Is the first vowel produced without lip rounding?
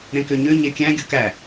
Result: yes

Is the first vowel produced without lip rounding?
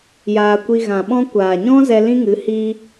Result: yes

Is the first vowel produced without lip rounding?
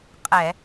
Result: yes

